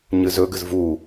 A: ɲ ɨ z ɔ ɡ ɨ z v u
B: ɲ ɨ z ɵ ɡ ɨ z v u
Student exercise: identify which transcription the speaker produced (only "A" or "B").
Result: B